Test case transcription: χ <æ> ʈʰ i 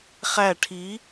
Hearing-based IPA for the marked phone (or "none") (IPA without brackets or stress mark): æ